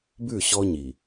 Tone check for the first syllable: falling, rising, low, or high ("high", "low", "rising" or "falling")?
falling